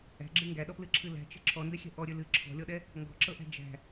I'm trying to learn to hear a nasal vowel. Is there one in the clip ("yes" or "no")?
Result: no